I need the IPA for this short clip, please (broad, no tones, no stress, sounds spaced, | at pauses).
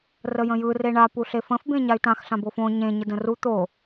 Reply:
r ə j ə̃ j ɯ r e ɳ a p u ɬ e f ə̃ f b ẽ ɲ a y̯ t ã x ɬ ã b o f õ ɲ ẽ ɲ ə d ə̃ r u t̪ o